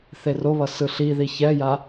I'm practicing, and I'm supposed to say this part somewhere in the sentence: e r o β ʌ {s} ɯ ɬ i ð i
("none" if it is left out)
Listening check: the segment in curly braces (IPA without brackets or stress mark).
s